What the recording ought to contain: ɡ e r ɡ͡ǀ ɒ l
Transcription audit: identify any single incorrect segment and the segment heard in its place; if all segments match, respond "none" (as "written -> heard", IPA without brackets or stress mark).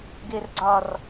l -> r